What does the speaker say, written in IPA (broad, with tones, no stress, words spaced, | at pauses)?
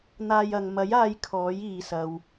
n̪aː˧jɐ˨ŋ mɐ˨˥j aː˧j kʰɔː˨˥jiː˨sɐ˨w